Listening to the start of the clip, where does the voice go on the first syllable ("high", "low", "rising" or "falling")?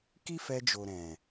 high